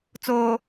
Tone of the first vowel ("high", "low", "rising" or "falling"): low